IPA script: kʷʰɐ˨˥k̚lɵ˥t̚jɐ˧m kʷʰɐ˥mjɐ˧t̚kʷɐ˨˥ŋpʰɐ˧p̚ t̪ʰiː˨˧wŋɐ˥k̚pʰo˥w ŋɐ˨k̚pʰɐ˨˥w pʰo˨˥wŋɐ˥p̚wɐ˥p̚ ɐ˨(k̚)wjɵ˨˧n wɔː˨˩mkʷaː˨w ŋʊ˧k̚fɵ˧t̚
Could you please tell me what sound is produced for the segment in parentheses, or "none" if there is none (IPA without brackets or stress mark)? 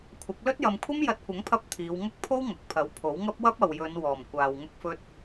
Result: none